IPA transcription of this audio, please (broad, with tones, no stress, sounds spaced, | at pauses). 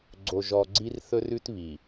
ɡ͡ǀ o˨ ʒ ɔ˨ ɡ͡ǀ i˦ r θ ɵ˦ r ʉ˦ t β i˨